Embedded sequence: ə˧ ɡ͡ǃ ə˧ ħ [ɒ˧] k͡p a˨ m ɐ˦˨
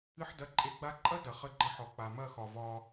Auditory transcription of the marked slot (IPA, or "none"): ɒ˨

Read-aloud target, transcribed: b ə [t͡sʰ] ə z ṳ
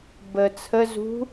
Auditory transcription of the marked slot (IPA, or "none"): t͡sʰ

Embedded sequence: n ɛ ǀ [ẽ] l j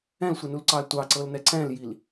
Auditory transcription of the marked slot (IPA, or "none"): ɛ̃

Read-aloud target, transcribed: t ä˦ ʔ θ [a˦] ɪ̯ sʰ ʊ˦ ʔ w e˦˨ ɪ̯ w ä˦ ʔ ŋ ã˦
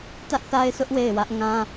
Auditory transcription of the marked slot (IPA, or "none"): a˦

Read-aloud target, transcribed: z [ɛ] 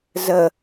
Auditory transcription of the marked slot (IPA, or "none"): ə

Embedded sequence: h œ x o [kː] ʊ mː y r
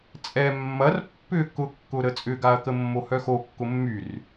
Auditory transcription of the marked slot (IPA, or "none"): kː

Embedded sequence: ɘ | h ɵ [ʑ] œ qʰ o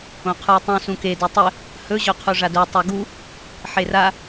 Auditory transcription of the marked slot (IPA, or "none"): ʑ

